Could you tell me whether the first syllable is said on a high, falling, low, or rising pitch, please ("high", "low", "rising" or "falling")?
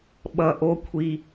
high